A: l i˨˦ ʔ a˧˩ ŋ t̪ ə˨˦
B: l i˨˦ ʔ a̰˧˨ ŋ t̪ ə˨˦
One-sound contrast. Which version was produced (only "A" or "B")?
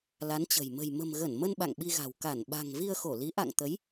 B